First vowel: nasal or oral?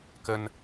oral